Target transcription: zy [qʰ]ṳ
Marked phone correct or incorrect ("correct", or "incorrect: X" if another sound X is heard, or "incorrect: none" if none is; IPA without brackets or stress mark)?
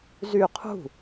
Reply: correct